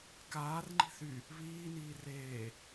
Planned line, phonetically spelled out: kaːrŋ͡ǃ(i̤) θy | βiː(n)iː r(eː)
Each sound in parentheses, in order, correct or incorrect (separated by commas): correct, correct, correct